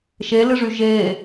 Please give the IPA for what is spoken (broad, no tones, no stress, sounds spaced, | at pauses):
ʃ e l ɨ ʐ y ʒ e